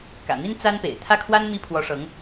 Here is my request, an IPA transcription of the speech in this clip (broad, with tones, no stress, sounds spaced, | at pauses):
k ä̰˨˩ n̪ i˥ n t͡s a˥ n p ḛ˨˩ ɪ̯ t̪ʰ ä˥˩ kʰ w a˥ n m i˥˩ pʰ w ɔ˧˥ ʂ ɤ˧˥ ŋ